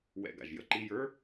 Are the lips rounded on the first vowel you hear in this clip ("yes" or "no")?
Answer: no